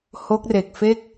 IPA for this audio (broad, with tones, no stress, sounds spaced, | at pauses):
h o˦˥ k̚ r e˨˩ k̚ f e˥˩ k̚